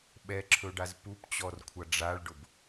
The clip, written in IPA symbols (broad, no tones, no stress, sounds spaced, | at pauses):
ɓ ɛ ǁʰ ɵ ɖ a z p u p t͡ɕ ɔ r kʷʰ ʌ ɖ͡ʐ a ɭ ɖ ʊ b